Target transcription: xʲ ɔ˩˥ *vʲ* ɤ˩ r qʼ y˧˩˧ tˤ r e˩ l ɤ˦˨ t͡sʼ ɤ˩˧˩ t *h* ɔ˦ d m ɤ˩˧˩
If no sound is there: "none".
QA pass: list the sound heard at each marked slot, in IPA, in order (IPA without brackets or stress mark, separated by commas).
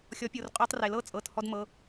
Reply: pʲ, h